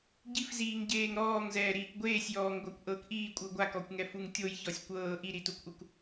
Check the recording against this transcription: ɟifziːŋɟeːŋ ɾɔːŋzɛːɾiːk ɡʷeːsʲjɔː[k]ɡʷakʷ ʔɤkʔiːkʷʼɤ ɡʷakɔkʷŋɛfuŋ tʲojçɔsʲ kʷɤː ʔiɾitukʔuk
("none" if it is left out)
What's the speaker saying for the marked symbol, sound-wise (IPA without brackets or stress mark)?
ŋ